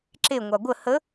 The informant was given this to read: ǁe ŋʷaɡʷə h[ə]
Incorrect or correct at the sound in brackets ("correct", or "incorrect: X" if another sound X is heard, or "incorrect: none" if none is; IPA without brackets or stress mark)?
correct